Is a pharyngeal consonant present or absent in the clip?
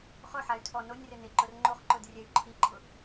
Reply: present